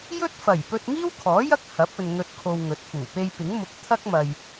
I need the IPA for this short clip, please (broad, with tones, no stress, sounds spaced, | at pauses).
j ɵ˥ t̚ f ɐ˨˩ j p ɵ˧ t̚ ŋ iː˥ w kʰ ɔː˨˥ j ɐ˥ k̚ h ɐ˨˥ p̚ ɵ˨ n ŋ ɵ˧ t̚ kʰ o˧ w ŋ ɵ˨˥ t̚ f uː˨˩ p e˧ j p ɪ˨˥ ŋ m ʊ˧ k̚ t̪ʰ ɐ˥ k̚ m ɐ˧ j